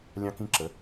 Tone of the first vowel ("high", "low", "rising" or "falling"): high